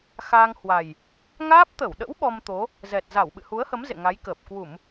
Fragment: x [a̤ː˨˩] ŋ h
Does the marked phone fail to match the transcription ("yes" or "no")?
yes